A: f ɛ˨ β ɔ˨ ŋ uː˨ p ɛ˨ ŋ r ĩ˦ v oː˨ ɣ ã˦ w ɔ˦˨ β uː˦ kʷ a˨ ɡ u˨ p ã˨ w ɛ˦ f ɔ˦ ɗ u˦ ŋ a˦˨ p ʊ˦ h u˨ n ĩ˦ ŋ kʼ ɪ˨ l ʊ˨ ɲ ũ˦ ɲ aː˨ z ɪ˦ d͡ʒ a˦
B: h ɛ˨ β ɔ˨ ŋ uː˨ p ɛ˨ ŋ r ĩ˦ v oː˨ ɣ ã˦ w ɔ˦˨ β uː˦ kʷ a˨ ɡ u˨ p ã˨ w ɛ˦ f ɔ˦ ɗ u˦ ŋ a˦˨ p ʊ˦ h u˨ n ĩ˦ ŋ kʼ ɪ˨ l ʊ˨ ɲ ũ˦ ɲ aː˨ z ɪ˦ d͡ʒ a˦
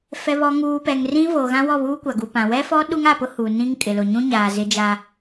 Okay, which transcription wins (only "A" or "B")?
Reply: A